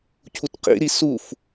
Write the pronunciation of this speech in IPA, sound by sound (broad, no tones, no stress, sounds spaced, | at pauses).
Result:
cʰ u t q ḭ ɾ i s u f